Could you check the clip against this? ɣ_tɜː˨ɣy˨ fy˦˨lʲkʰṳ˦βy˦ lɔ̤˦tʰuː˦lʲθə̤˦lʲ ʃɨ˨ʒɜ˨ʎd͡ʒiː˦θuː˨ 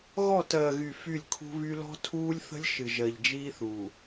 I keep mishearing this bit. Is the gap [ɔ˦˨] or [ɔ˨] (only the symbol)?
ɔ˦˨